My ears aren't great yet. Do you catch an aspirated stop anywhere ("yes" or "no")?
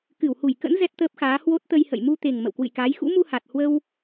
no